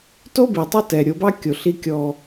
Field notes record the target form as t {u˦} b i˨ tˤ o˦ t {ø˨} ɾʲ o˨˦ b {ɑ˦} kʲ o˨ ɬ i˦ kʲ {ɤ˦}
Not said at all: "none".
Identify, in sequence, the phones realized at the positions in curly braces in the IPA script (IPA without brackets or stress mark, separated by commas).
o˦, ɛ˨, ɑ˦, ɔ˦